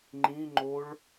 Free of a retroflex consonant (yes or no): no